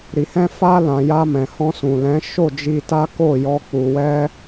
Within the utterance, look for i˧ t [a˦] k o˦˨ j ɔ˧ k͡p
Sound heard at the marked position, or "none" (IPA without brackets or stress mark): a˦